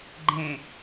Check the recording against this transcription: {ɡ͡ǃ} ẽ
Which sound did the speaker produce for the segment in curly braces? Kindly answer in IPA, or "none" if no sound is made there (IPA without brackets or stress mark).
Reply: ɡ͡ǃ